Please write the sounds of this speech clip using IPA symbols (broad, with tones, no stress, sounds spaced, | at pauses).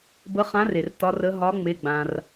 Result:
b ə˨˥ χ ã˨˥ r e˩ r t ɒ˨˥ r ə˨˥ ɦ ɒ˨˥ ŋ͡m e˩˧˩ ɡ͡b ã˩ r